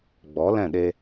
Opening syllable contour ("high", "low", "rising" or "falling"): rising